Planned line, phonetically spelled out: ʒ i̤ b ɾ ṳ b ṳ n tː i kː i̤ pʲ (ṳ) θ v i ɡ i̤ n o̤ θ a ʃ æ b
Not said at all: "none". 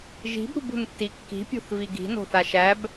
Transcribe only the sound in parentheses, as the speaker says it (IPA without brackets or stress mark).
o̤